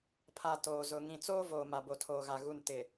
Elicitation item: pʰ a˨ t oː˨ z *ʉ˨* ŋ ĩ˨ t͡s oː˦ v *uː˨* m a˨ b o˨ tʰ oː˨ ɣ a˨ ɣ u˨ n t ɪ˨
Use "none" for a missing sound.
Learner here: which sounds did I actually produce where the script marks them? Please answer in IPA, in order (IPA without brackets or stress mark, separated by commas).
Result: ʊ˨, oː˨